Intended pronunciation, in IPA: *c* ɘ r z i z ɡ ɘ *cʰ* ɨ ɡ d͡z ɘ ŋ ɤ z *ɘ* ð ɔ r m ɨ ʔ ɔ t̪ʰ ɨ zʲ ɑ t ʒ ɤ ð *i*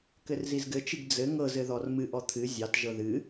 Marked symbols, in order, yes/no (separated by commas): no, no, yes, no